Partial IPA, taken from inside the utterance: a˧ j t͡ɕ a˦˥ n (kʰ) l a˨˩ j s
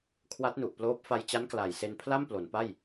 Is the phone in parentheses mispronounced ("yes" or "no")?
yes